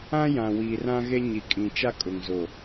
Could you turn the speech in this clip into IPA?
ã˦jã˨wiː˨r ã˦ɣe˦ ɲi˨kʼĩ˨ t͡ʃa˦kʼʊ˨ŋzo˨

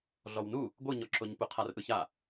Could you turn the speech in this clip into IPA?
ɮɔwnu | ɡʷɯɲɔǁoɲpu qʰarʔɯça

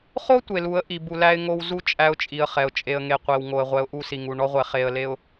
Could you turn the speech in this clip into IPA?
χo˦ tʷe˨lu˨˦ə̯ ʔi˨bu˨læ˦ɪ̯ŋo˦w zu˦ t͡ʃʼæ˦ʊ̯t͡ʃʼi˨ə̯χɛ˨ʊ̯ t͡ʃʼe˨ə̯ŋe˨qʷe˨w ŋo˨ə̯ʁʷɛ˨˦ʊ̯ ʔu˦si˨ŋu˨ ɳɔ˦ʁʷɛ˨ χe˨ə̯le˨ʊ̯

